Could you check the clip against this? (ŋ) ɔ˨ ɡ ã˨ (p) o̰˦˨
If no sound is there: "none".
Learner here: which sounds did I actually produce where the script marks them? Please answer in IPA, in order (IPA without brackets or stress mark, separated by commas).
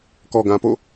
k, p